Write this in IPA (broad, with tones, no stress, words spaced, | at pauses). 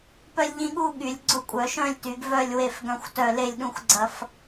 pœ˦lʲʎĩ˦ɠu˥˨ ɠy˨˩˦lʲɡ͡ǀʊ˦ kʷʼœ˨˩˦ʃœ̃˥˨lʲty˨˩˦ɡ vœ˥˨lʲ we˥˨fɡœ̃˥˨xʷtœ˥˨ le˥˨lʲɗũ˥˨xʷɡ͡ǀɐ˦f